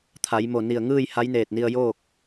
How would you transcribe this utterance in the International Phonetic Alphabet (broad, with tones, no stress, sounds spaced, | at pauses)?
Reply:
t̪ʰ a˩˧ j m o˧˩ n i˧˩ ə̯ ŋ ɯː˥˨ j h a˧˥ j n eː˧˩ t̚ n i˧ ə̯ j oː˥˨ k̚